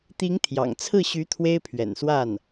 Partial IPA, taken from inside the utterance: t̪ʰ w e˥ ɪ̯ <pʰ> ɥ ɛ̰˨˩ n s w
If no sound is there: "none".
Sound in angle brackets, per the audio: pʰ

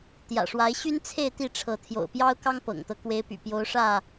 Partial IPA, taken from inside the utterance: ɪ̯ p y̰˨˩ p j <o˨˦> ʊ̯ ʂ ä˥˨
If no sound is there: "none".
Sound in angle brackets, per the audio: o˨˦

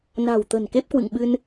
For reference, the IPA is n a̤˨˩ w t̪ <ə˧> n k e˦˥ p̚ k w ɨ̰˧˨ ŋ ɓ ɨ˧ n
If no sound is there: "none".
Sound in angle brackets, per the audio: ə̤˨˩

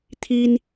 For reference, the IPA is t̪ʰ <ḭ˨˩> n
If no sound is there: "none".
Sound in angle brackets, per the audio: i˦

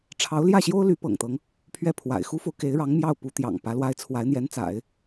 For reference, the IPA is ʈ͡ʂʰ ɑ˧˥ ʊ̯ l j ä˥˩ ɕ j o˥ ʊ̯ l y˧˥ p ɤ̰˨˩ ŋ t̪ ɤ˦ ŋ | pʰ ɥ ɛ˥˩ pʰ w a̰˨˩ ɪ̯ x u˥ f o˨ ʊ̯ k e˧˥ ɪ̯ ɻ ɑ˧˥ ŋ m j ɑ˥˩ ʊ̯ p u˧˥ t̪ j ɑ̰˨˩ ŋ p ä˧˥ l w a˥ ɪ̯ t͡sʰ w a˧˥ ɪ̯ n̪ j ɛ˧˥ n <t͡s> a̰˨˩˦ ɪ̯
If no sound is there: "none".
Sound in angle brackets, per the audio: t͡s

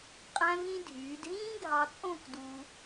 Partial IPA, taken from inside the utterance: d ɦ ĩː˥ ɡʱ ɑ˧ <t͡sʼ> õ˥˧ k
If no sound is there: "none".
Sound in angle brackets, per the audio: t͡sʼ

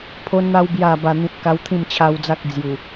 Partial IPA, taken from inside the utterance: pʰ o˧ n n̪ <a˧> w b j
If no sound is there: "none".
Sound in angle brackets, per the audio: a˧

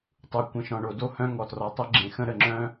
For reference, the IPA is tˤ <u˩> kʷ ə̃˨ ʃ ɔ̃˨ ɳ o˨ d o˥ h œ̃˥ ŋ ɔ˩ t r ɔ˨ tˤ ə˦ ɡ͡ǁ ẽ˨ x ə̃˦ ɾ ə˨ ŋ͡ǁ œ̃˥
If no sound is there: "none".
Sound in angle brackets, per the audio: u˩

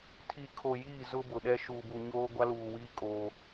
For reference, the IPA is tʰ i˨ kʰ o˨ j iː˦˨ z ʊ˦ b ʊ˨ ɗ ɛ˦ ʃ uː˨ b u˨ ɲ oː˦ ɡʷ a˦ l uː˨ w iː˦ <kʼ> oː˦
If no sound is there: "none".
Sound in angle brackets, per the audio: kʼ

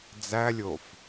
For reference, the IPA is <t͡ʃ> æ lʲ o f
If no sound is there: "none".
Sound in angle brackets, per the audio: d͡z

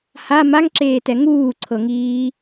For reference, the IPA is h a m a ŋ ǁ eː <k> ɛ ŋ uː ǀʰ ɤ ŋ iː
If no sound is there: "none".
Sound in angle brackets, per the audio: t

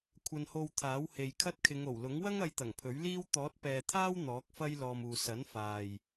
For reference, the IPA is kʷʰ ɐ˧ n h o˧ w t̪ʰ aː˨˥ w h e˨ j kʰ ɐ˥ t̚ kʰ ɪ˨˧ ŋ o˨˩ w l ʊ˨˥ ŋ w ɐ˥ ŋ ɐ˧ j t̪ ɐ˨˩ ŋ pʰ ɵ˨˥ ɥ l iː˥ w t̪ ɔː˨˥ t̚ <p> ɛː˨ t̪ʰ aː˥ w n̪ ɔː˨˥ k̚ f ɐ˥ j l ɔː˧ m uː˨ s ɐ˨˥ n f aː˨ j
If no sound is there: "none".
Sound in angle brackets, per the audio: p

